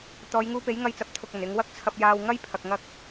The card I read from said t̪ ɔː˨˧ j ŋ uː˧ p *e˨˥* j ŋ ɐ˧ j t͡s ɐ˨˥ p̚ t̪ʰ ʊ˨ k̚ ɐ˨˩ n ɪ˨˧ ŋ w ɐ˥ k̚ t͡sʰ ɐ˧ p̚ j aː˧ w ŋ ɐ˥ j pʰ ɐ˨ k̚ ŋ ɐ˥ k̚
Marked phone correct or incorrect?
correct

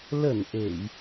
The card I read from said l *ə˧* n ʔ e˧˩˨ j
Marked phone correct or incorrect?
incorrect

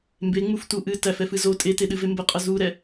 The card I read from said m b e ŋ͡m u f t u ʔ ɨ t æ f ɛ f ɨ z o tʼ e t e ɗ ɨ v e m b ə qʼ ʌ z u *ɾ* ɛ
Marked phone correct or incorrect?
correct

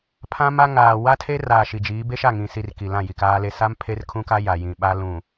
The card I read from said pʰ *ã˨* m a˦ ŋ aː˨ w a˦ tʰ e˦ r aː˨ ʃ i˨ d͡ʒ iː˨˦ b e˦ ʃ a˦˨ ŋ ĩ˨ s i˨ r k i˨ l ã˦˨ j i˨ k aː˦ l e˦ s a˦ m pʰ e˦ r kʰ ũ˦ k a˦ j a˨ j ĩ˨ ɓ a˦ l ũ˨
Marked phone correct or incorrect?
incorrect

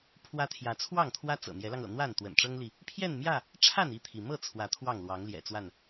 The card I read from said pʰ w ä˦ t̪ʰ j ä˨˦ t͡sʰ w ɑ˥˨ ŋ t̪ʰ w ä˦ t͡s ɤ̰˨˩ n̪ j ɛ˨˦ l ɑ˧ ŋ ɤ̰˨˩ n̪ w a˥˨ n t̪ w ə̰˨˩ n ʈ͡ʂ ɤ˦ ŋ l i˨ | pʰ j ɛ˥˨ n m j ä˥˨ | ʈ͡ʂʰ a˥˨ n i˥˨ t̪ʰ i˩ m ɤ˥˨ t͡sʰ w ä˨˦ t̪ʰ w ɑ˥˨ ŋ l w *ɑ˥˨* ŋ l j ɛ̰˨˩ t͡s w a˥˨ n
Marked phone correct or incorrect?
incorrect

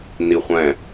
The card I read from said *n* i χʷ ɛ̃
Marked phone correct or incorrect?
correct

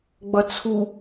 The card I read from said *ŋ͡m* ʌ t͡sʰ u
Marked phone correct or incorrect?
incorrect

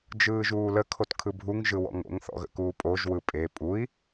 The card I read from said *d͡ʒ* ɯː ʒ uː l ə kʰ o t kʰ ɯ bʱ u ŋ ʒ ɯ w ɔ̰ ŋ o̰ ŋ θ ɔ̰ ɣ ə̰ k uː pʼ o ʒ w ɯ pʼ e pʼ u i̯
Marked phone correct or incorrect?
correct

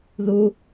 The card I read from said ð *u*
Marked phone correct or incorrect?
correct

